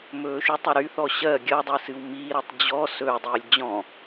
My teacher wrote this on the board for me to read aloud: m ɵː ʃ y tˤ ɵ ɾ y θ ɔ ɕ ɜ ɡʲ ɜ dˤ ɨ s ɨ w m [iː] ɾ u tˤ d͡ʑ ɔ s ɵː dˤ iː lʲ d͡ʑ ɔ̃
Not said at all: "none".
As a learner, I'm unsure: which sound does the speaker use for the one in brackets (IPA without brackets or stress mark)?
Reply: iː